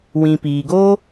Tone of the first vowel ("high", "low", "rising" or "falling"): low